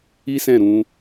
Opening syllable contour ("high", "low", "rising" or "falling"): high